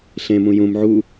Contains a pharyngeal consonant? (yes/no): yes